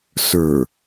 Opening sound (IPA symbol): s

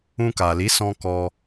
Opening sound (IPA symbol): ũ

